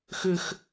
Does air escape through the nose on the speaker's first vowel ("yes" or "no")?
no